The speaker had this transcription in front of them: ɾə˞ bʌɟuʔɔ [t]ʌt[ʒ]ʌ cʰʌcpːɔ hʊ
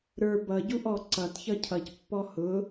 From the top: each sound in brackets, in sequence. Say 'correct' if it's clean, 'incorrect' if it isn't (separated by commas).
incorrect, incorrect